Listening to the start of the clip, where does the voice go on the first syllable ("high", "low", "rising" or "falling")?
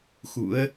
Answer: rising